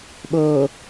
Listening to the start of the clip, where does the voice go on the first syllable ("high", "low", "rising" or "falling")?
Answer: low